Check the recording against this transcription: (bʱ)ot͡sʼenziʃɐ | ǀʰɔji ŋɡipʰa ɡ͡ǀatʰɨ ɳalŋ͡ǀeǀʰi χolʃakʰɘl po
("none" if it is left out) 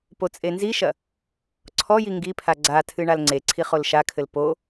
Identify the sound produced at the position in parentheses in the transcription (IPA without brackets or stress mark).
p